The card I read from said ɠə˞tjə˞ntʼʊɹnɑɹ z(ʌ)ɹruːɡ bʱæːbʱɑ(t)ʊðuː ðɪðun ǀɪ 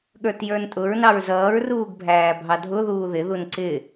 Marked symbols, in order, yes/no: no, no

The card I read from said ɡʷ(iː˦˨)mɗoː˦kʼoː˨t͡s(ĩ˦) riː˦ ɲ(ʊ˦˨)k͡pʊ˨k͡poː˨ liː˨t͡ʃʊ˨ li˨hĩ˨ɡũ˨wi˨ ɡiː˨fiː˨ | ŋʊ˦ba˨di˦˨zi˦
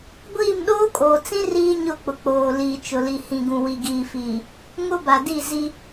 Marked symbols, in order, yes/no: yes, yes, yes

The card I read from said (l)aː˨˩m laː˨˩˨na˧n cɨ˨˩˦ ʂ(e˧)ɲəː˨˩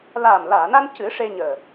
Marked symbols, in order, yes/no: yes, yes

